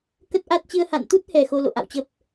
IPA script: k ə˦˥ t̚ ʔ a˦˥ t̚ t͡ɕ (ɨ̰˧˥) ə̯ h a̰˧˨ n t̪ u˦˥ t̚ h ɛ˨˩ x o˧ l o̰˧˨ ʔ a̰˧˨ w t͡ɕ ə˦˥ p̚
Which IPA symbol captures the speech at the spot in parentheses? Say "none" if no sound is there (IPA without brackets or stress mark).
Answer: ɨ˧